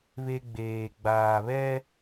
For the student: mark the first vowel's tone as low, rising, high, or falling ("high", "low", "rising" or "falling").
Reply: high